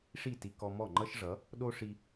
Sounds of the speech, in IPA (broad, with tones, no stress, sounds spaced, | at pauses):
ʂ i˥˩ t i˧ k ɔ˧ m ɔ˥˩ ŋ͡ǃ ʌ˥ ʃ ʐ ʌ˩˥ | ɗ o˥ ʂ i˧